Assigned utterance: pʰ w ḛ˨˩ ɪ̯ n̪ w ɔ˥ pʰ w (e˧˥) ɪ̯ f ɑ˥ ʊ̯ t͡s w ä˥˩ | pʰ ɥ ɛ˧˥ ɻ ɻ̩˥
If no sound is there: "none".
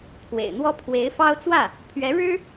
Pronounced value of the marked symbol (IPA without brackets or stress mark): e˧˥